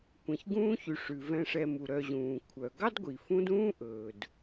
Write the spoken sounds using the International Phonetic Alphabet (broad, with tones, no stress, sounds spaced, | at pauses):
kʷ ẽ˩ ç ɡ ũː˦ ç y˩ ʂ ʉ˩ v ɛ̃˨ ʂ ɛ˨ m u˩ ɾ œ˨ ʑ ũː˩ kʷʰ œ˩ ɡ ɑ˥ d ɡʷ i˩ f ũ˦ d ũː˥ ʔ ɵː˩ d